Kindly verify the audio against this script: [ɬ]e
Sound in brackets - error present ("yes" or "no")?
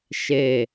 yes